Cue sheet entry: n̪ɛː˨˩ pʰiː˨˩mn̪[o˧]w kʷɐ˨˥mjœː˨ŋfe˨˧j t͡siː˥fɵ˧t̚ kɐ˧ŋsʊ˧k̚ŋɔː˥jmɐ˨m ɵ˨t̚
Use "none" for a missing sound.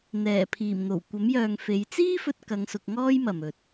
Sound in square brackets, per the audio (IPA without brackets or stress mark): o˨˩